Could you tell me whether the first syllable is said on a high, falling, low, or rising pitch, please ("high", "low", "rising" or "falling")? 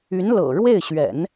rising